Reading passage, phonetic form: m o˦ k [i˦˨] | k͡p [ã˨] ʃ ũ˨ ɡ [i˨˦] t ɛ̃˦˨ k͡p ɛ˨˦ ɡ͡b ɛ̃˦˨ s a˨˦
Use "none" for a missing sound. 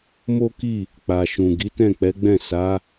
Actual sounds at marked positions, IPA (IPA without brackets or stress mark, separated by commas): i˦˨, a˨, i˨˦